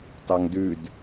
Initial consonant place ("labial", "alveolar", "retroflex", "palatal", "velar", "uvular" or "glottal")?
alveolar